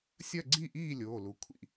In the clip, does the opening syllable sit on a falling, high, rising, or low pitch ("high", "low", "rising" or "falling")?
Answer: falling